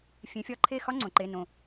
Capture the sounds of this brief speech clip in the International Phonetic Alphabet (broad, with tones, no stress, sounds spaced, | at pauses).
fʲ ẽ˨˦ fʲ ɒ˧˥˧ ǃʰ e˥˨ x ɒ˦˥ ŋ͡ǀ õ˨˩˦ ǃ e˧˥˧ n õ˥˨